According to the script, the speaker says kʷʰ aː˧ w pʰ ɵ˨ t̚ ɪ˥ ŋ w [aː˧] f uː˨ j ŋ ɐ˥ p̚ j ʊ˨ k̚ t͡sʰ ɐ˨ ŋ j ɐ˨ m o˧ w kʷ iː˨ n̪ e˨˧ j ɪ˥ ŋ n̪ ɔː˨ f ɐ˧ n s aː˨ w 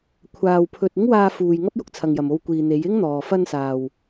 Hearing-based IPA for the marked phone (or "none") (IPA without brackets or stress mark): aː˧